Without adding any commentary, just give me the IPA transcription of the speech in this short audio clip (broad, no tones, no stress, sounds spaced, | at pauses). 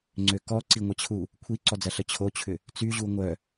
ŋ͡ǀ ø k ɔ ǀ i ŋʷ ɐ t͡ɕʰ u | kʷʰ i ǀ ɔ d͡z ɐ ɬ ə t͡ɕʰ o t͡ɕʰ ʏ | t͡s y ʑ u ŋʷ œ